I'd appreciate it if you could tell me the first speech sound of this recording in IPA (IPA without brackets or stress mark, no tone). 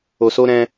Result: o